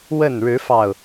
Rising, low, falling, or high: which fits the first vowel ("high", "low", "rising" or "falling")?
falling